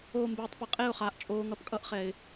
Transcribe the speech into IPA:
oː˧ m b eː˨ tˤ p ɛ˨ qʼ e˦˨ ʊ̯ χ aː˨ ʔ t͡ʃʼ oː˨ ŋ ʌ˨ p kʼ ʌ˧ ʔ χ ɛ˨ ɪ̯

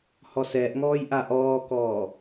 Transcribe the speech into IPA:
h ɔ s ɛː ʔ ŋ ɔː j ʔ a ʔ ɔː k ɔː

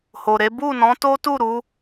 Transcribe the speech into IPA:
h o˨ ɾ e˨˦ b u˦˨ n ɔ̃˨˦ t o˦ t u˦˨ ɾ u˨˦

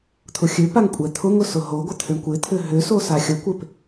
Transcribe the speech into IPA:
t̪ʰ ʊ xʲ ø p a ŋ kʷʼ ɛ t̪ʰ ʊ ŋ ʊ s ʊ ɦ o ɡʷ ə t̪ʰ ʏ ɳ kʷ ɪ t̪ʰ ʏ ɦ ʏ s o s a xʲ ə kʷ ɪ p

